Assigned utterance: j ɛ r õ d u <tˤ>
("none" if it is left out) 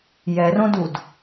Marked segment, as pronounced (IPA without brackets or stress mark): d